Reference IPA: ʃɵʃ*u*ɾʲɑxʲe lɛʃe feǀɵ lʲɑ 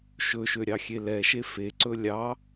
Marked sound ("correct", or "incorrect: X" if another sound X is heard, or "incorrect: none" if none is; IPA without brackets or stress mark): incorrect: ø